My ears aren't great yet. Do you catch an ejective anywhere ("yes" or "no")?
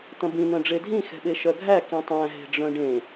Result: no